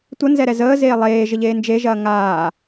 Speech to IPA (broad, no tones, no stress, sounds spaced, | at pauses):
tʷ ə n z ɛ ɾ ɛ z əː z eː lˠ eː ʒ ə ʎ eː n d͡ʒ e ʒ ɐː ŋ aː